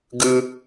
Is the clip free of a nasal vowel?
yes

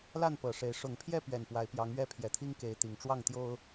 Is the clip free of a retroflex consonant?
no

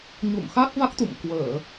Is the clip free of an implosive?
yes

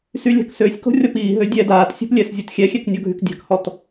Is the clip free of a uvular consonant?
yes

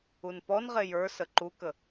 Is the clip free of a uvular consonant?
no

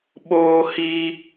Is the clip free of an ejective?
yes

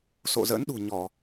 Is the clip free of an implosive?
no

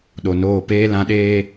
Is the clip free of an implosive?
no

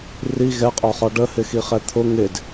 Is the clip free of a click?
yes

